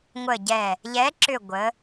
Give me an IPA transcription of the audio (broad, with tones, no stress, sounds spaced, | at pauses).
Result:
ŋʷ ə˧˩ ɟ ɛ˧˩ | ʎ ɛ˨˥ ǁ ʏ˧˩ ɡʷ ə˩˧